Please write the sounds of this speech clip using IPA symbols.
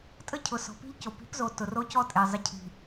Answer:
tʼə˦cʰʊ˨sɔ̤˨ pi̤˦ʎco˨ pi̤˨˦pzo˨ tʊ˨ro˦ cɔ˦tʼe˨ zˤə˨cʰi̤˨

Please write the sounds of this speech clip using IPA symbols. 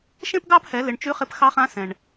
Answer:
ʃẽ˥pɡɑ˥phɛ˩˧lɪ˩˧ɳ t͡ʃʉ˧˥χɪ˧pxɑ˧˥χã˧˥ sɛ̃˩ɳ

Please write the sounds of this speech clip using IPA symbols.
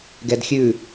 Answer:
ɡɛdxʲʉ

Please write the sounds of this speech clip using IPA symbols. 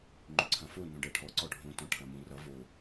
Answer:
ŋ͡ǃʏǀʰɐ̃fo nõɖɜʈʰɔ ǀɔɖʱõ tɔ̃ʈʰɐ̃mũ rʌ vo

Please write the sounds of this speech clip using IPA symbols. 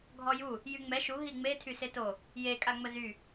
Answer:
ɡʱɔju | jyŋ͡mɛ ʃu ɦiŋ͡me tʰyseto | je kʼaŋ͡məzy

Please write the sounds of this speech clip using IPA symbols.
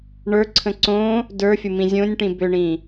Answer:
ɳə˞ǀʰə̃ ǀõ | də˞fʲʊmĩ zʲõnʲʈĩ bʏɳĩ

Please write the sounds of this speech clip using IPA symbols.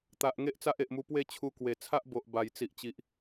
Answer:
t̪a˨ʔ ŋe˦ʔt͡sa˦ʔe˨ʔmu˧ pwe˥˧t͡ɕʰu˧kwe˨˩ t͡sʰa˦ʔbo˨ʔ ba˨˩j t͡si˨ʔt͡ɕi˨ʔ

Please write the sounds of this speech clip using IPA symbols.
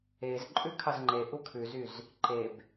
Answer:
ez ǃʼʉkʰɑzŋ͡ǃeʔu kʰʉzyz | ǃeb

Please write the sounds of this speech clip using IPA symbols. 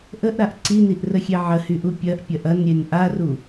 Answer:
ʔəʔɾaʔ ǀiniʔrəxʲe ʕəhyʔu pʲɐʔpʲɐʔ ɐnɾʲen ʔaru

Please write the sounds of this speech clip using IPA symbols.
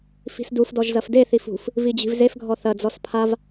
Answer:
fi̤sdufdɔʒ zɐfdeθif ṳf | vid͡ʑi̤vzefɡʱɔ θɐd͡zɔs pʰav

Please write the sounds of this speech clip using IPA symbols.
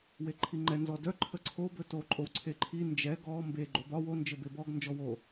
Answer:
weǃʰiŋ͡ǃɛ nzɔdœ ǃʰəǀʰo bɵto ǃʼowǀʰeǃʰi nd͡ʒɛ ɡɔ mbe ɡ͡ǃobɒ wo nd͡ʒɘbebɔɡ nd͡ʒɔwo

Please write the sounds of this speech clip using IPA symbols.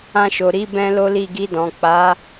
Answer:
ã˧ʃo˨ɾi˧ bɛ̃˦lo˦li˦˨ ɡi˧dɔ̃˨ k͡pa˨˦

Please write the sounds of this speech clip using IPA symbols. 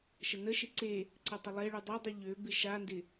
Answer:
ʃənəʃɪ ǀe | ǀətˤɪlˠeɭy dˤœdˤy ʎø bɪʃandɪ

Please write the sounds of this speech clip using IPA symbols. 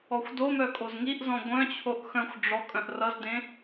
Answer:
ɔxʷdomœ kʼozŋiʔzɔ̃ ɡʷœ̃t͡ɕʰoʔ xœ̃xʷ ɖ͡ʐɔ kʼœ̃ʔrʌzdẽ

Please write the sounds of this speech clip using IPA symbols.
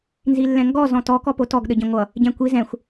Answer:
nzilːɛ̃ŋɡɔ zɔ̃tɔ kɔpotɔɡ ɗəɟĩŋʷʌ | ɟɛ̃kʷi zɛ̃xʷ

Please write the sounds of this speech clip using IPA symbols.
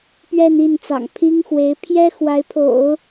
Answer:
pɥɛ˥˧ni˥˩nt͡sɑ̰˨˩ŋ pʰi˥ŋxwe˧˥ɪ̯ pʰjɛ˥ xwa˧˥ɪ̯pʰo̰˨˩˦ʊ̯

